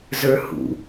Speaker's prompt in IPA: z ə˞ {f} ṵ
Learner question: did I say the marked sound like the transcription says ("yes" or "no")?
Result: no